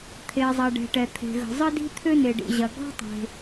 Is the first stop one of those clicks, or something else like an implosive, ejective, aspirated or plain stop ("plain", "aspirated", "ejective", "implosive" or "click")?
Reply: aspirated